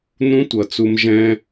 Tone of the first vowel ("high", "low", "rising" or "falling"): high